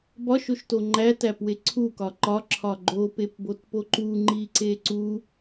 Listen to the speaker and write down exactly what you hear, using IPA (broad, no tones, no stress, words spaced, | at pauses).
bɒʃoʃto ŋ͡ǃætæpwe ǀʰukɒ ǃɒǁʰɒ ɡ͡ǃopepbotpo ǃuŋ͡ǃiǀe ǀu